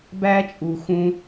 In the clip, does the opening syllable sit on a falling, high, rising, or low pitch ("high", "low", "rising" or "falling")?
high